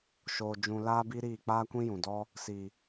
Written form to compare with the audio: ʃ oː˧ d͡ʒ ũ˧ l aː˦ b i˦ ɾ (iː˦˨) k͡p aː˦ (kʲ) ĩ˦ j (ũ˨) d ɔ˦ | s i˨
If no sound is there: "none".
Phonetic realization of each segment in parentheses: iː˦˨, kʷ, ũ˨

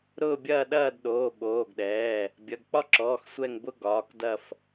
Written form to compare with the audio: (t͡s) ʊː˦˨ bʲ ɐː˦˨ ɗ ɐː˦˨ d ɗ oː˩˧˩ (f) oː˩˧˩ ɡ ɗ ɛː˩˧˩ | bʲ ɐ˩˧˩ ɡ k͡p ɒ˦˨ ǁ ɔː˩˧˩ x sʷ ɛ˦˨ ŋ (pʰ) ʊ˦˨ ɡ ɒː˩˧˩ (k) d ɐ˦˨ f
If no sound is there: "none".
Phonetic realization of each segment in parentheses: ɾ, ɓ, b, k

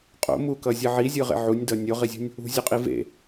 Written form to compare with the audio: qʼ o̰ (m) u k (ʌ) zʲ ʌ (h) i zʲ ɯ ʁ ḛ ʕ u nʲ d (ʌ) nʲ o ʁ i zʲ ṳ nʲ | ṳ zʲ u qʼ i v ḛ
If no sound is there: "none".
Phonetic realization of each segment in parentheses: m, ʌ, ʕ, ʌ

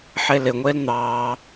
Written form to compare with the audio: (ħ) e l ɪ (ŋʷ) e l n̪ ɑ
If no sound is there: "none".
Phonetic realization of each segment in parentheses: ħ, ŋʷ

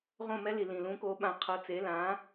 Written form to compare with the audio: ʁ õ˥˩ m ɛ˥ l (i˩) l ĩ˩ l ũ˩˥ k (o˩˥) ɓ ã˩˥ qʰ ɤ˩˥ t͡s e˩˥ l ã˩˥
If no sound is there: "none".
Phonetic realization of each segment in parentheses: i˩, o˩˥

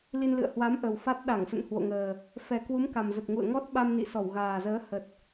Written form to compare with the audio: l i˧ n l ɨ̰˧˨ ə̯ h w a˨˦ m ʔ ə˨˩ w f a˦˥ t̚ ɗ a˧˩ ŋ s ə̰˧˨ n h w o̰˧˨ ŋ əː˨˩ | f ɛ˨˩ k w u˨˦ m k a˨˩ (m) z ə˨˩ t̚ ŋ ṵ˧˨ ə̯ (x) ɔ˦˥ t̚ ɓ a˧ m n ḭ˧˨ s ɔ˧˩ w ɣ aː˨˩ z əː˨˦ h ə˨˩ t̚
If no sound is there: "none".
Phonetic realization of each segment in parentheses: m, ŋ

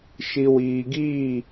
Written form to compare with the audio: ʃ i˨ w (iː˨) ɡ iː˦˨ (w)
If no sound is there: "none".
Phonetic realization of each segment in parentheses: iː˨, none

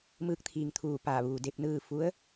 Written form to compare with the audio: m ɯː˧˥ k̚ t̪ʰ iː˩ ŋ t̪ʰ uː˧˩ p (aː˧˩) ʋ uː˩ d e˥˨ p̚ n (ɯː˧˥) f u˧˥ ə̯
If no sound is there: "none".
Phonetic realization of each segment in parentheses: aː˧˩, ɯː˥˨

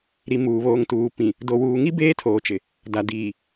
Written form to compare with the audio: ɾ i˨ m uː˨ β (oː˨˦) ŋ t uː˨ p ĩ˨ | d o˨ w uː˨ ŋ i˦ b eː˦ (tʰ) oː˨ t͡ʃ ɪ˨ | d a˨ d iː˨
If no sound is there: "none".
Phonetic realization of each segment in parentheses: oː˨, tʰ

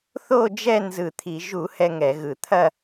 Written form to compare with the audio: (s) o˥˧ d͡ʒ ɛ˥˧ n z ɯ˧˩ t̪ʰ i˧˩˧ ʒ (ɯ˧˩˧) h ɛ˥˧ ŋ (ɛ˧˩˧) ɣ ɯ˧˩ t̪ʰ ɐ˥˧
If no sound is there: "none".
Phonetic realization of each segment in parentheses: θ, u˧˩˧, ɛ˧˩˧

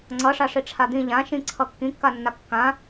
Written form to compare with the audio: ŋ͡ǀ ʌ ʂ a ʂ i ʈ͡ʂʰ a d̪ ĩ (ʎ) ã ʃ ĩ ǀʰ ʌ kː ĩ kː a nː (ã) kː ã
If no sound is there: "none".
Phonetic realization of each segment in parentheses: ʎ, a

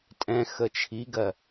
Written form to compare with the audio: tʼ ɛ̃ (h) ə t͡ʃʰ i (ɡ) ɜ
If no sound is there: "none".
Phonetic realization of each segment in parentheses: x, ɡ

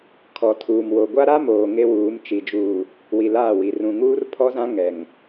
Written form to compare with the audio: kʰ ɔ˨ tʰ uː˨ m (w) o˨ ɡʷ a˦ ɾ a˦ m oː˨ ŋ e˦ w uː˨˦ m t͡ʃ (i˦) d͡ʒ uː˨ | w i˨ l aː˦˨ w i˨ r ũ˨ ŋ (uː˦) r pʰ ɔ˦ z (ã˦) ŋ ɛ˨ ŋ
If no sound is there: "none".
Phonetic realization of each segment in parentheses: w, i˨, uː˦, ã˦

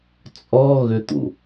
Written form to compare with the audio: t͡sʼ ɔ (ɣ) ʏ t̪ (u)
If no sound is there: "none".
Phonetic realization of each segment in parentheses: ɣ, ṵ

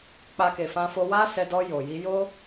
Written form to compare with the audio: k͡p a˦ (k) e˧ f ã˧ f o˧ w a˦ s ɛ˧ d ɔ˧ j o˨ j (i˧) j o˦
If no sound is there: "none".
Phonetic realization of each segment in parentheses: k, i˧

